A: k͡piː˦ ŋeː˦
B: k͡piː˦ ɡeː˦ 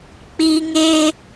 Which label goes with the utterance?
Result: A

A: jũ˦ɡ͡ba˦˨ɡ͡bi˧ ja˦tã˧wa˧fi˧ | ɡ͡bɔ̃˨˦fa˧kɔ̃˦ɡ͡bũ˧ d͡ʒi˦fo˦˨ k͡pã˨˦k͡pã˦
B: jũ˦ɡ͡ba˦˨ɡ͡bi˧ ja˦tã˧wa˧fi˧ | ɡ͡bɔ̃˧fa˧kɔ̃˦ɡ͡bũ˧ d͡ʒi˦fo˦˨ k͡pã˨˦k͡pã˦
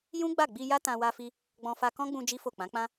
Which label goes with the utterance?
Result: B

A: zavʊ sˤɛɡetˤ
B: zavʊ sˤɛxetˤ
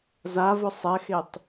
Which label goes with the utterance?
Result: B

